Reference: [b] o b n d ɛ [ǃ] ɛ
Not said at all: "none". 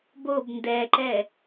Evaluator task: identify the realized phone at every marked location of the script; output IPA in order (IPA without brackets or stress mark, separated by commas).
b, ǃ